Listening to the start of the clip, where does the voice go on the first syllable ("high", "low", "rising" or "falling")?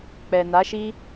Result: low